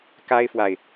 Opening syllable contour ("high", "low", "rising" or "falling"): high